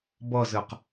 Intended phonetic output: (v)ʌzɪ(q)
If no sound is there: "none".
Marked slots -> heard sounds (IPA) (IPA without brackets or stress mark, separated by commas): b, q